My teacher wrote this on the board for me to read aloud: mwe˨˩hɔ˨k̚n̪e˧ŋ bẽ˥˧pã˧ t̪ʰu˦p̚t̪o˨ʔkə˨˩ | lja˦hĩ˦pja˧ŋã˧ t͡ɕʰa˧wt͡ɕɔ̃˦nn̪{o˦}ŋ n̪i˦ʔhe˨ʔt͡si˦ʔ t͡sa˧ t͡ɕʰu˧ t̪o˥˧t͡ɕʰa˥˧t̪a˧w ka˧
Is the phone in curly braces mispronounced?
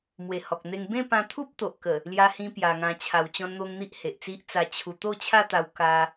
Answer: no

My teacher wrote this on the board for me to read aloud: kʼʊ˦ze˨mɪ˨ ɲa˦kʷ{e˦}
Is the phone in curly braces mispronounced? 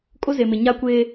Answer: yes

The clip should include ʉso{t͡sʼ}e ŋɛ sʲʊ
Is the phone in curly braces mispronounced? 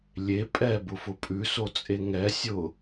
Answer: no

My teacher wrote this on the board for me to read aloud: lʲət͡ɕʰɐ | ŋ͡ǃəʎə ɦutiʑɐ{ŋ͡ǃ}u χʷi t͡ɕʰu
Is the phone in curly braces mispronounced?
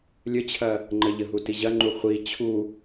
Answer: no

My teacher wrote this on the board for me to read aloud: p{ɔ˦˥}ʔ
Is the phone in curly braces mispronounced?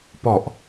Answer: yes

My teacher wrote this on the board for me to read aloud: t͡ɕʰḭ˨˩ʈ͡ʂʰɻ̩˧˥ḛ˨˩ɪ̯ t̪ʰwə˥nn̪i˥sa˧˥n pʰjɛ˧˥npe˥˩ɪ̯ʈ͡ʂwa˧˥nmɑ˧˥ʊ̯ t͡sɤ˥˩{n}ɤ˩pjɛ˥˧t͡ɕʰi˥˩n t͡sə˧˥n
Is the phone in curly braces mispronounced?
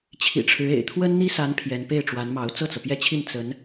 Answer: yes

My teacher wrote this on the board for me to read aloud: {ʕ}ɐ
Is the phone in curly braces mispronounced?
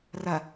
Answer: yes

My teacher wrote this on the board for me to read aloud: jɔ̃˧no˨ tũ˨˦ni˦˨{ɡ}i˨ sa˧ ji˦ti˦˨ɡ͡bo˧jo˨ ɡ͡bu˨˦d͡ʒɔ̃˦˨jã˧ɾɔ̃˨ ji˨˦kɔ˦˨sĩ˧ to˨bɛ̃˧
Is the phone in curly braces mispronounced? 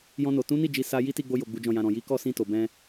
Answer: yes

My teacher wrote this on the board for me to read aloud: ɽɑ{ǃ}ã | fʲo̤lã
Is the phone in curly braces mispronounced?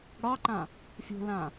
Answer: no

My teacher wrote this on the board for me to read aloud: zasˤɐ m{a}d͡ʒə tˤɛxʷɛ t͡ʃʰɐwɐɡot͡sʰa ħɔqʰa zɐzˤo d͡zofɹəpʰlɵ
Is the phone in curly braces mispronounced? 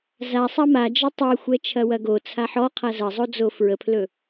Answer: no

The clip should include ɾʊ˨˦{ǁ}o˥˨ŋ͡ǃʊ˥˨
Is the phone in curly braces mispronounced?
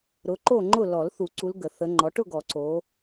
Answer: yes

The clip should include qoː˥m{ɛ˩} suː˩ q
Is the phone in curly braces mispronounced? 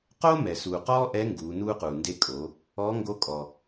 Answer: no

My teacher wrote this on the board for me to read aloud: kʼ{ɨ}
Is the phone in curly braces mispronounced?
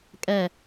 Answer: yes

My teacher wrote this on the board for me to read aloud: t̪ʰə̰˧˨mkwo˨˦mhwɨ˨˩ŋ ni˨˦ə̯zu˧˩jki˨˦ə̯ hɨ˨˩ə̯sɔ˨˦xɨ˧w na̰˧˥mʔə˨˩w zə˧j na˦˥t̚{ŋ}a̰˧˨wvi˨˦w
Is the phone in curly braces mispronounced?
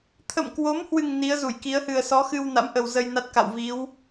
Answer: yes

